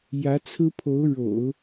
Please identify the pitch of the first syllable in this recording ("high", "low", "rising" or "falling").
rising